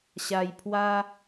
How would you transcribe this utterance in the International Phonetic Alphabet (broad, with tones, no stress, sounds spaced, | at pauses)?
ɕ a˧ j pʰ w a˦